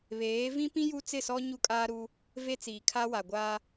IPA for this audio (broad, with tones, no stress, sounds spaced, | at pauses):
β eː˨˦ v ĩ˦ p ĩ˦ j u˦ t͡s ɪ˦˨ s ɔ˦ ɲ u˦ kʼ aː˦ ɾ u˦ | v e˦ t͡s iː˨ kʰ a˦ w a˨ ɡʷ aː˦